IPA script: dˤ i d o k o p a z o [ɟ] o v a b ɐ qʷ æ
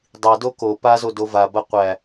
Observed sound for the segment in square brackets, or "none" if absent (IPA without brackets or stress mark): d